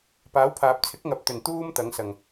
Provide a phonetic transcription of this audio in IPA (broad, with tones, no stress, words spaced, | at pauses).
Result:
paː˨˥wpʰaː˨p̚t͡sʰɪ˨˥k̚ŋɐ˨p̚ t̪ɵ˨˩nt̪uː˧m t̪ɐ˨˧ŋsɐ˨ŋ